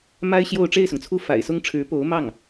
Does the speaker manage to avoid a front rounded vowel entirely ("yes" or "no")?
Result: yes